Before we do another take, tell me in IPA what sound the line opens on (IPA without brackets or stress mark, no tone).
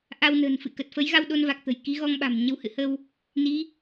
ʔ